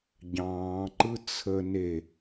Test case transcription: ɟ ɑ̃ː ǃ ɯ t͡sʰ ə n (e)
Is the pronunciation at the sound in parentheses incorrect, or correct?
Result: correct